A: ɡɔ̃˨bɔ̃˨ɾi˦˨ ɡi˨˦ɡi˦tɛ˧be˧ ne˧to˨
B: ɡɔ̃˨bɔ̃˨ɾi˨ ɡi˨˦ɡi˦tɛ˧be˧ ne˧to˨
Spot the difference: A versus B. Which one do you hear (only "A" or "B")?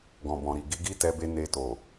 B